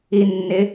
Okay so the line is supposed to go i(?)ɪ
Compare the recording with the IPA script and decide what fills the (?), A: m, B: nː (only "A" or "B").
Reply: B